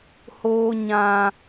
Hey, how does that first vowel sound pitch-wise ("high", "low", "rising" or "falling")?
high